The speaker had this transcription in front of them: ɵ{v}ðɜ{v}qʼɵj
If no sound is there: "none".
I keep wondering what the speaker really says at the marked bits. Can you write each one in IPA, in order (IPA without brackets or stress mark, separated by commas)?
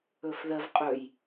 f, v